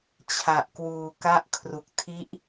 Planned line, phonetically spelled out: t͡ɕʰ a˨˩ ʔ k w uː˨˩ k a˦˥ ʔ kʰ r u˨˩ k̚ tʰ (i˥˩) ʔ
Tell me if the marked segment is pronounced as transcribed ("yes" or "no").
no